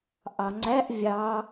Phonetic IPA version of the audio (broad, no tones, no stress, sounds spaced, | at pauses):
ʔ ɑ ŋ͡ǀ æ ʔ vʲ ɑ